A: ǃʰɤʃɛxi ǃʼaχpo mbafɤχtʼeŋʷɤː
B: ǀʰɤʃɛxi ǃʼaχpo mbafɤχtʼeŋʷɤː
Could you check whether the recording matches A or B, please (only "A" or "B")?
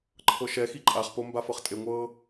A